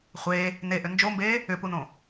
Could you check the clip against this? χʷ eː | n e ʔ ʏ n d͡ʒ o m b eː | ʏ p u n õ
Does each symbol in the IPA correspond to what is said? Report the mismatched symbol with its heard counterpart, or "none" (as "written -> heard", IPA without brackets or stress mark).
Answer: none